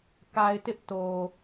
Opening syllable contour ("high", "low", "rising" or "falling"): low